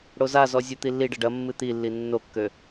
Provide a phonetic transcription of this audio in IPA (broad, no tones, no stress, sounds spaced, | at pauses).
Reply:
ɽ o z a z ɔ zʲ u t̪ i lː i ɖ ɐ ɖ ɐ mː ɨ t̪ i lː i nː o kː ø